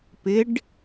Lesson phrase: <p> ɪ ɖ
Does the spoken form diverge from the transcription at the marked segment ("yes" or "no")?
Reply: no